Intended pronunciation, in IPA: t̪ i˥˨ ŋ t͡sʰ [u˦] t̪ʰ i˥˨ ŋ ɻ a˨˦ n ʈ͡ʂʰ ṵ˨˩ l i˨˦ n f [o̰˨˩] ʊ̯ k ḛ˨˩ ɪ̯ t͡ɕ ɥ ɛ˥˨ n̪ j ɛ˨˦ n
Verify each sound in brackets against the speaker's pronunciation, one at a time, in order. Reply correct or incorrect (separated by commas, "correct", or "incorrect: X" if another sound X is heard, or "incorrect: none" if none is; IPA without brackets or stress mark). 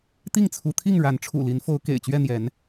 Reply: incorrect: u˨˦, incorrect: o˨˦